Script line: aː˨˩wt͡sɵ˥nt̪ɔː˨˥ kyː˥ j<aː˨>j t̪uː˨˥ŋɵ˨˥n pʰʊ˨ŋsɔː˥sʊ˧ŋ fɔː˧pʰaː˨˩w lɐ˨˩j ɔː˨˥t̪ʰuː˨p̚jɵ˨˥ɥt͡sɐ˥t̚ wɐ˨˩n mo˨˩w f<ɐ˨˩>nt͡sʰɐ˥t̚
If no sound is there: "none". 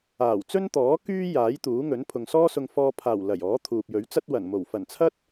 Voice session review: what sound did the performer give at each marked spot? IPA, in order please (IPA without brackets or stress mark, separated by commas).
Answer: aː˨˥, ɐ˨˩